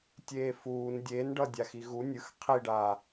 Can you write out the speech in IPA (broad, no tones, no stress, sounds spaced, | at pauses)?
tʲ eː f uː n dʲ eː n ɖ ʌ dʲ a x i ɣ u nʲ ɯ x qʰ i ɖ aː